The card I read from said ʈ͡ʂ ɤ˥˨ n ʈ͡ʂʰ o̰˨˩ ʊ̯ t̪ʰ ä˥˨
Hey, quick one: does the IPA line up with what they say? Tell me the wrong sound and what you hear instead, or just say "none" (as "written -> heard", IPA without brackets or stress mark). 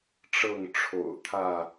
n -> ŋ